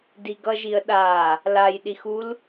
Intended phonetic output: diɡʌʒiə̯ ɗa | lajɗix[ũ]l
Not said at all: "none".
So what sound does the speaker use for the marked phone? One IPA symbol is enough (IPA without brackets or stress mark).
u